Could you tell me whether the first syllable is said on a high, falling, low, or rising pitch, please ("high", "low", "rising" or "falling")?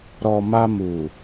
low